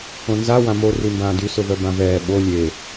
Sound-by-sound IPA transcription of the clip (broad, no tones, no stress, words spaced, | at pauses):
õnza wãmo rimbãːdy sʊvœbãvɛː ɓo lʲe